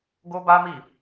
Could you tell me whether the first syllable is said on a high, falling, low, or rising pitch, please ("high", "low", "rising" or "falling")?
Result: high